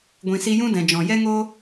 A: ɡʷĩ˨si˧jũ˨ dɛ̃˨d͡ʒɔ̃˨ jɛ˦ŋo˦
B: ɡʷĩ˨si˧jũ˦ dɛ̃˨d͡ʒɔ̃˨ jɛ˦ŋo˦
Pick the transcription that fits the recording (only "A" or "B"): B